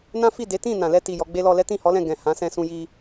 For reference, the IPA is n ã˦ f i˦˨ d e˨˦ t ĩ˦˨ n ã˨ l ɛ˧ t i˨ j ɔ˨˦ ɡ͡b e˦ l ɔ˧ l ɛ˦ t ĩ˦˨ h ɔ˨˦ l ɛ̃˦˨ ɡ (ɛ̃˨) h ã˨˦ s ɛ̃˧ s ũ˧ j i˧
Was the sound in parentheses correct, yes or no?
yes